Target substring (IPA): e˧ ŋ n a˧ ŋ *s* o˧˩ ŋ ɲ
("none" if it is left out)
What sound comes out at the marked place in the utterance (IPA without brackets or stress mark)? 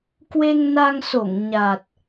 s